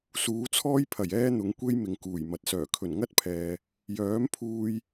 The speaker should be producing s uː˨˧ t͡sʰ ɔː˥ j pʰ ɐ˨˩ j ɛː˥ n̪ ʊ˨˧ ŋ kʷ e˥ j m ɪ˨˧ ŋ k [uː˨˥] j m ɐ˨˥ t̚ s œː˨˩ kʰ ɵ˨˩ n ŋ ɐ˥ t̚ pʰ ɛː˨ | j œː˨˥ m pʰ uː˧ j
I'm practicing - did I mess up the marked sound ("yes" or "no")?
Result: yes